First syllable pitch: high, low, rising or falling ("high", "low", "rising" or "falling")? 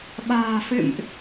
low